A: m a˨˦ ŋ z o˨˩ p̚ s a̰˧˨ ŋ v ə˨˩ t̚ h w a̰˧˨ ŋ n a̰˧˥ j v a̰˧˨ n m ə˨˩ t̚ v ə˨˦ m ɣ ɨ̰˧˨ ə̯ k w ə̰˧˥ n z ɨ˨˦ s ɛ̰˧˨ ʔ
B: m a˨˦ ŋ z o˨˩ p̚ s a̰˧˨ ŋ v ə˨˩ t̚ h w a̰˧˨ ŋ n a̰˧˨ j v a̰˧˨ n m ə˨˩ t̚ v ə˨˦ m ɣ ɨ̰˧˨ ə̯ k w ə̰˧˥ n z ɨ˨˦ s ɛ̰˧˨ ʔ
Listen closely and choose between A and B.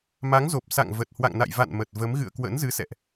B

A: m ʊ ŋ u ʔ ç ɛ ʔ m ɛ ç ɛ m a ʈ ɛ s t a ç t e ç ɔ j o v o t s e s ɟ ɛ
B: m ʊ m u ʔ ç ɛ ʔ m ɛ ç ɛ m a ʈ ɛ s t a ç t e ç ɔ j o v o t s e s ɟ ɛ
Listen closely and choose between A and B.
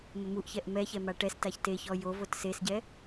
B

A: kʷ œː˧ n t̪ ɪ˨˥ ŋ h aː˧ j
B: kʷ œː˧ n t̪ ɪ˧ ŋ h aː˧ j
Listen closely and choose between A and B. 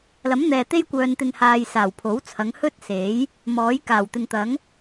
B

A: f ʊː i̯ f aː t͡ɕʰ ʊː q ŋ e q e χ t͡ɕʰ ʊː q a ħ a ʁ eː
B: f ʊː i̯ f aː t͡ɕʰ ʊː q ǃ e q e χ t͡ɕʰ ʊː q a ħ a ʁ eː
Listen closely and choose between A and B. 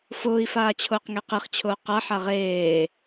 A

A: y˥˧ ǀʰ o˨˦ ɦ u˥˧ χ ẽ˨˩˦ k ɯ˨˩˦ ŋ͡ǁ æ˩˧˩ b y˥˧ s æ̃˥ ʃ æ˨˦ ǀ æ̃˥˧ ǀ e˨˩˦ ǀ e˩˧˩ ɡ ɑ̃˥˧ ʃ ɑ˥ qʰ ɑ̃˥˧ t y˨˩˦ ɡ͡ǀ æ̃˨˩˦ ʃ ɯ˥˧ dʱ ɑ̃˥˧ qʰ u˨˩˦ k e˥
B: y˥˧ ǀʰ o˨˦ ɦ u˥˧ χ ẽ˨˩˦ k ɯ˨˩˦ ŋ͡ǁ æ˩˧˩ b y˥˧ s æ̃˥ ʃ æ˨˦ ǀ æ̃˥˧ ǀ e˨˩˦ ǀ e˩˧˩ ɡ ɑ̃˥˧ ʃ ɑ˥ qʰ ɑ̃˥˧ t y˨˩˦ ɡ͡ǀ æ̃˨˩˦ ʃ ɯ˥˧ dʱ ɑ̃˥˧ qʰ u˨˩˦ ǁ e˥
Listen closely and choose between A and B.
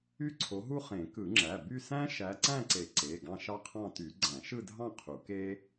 A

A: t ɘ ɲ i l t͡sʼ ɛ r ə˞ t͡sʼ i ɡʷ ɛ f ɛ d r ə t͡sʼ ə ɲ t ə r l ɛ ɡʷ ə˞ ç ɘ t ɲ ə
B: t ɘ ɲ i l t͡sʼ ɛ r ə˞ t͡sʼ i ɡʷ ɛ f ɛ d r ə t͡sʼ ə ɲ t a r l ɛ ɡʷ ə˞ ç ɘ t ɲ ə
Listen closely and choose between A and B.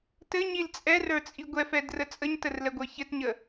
A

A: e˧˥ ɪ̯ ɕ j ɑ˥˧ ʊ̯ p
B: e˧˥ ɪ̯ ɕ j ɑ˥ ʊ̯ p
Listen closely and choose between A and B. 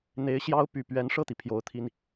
B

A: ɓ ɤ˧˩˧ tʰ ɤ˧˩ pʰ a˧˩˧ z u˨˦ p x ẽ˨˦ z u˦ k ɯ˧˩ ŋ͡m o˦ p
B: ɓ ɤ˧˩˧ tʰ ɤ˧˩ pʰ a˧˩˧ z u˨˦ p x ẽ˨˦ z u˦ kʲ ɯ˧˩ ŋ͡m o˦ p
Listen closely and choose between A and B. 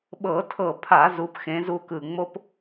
A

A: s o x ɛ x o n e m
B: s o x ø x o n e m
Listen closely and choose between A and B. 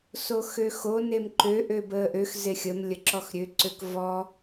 B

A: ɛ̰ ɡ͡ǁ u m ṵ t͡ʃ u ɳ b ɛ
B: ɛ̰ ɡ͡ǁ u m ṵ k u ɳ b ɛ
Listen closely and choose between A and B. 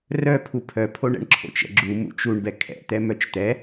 A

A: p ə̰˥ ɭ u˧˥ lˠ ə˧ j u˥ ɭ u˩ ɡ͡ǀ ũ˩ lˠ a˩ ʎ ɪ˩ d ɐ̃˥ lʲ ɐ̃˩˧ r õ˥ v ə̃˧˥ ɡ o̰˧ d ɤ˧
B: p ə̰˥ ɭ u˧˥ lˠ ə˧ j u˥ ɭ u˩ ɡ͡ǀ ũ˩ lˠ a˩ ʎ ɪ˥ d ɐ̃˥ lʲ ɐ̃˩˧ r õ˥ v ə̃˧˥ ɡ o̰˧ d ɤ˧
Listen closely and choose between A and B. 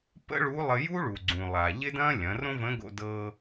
B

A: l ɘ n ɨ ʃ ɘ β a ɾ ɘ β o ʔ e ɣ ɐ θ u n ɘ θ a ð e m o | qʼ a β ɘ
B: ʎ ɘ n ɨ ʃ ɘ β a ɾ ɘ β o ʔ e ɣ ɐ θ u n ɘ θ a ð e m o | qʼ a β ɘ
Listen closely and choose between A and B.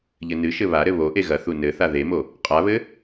B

